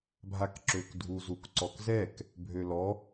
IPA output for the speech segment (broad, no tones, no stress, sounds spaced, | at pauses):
bʱ a k ǁ ø k dʱ u z u k ǀ ɔ k z ɛ k | bʱ ø l ɔ